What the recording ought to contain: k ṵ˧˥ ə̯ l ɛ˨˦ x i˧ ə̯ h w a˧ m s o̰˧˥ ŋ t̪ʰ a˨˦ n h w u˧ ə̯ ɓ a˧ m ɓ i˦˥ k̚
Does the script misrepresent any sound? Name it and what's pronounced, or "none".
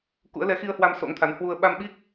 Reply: none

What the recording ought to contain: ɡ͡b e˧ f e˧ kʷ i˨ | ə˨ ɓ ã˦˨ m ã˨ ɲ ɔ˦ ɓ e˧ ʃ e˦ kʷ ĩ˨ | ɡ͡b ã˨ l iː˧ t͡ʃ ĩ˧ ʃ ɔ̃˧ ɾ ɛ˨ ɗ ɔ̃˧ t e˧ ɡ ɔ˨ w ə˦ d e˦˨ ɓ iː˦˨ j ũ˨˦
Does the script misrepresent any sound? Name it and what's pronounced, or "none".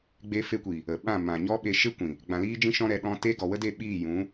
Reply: t͡ʃ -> d͡ʒ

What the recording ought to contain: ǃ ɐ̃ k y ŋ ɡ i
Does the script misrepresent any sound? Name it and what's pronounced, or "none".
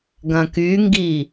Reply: ǃ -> ɡ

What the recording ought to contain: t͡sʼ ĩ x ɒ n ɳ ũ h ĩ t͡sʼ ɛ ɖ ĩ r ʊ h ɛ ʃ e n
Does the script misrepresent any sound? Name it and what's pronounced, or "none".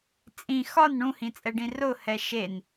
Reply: none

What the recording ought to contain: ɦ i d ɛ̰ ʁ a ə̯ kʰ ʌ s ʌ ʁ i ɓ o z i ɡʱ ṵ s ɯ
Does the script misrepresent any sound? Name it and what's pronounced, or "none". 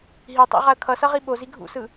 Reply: d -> tˤ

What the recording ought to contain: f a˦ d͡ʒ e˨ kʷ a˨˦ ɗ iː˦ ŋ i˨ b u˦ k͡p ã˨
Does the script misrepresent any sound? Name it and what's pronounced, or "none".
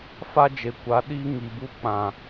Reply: none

